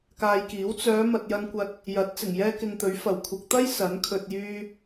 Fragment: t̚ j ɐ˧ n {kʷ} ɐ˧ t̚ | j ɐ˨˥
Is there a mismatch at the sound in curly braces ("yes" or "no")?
no